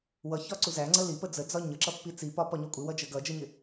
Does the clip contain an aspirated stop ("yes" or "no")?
no